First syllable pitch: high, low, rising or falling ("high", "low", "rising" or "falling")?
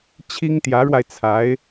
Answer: high